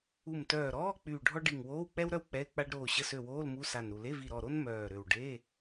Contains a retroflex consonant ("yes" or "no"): yes